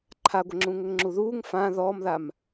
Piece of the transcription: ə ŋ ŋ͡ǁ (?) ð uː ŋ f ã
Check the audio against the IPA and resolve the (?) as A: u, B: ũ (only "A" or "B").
A